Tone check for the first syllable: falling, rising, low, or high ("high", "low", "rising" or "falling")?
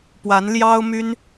rising